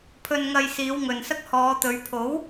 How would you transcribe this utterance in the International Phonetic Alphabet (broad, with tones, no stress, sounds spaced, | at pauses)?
pʰ ɵ˧ n ŋ ɐ˧ j s iː˨˧ w ŋ ɵ˨ n s ɐ˥ k̚ h ɔː˨˧ t̪ ɵ˨˧ ɥ pʰ o˨˥ w